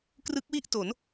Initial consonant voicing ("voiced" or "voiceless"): voiceless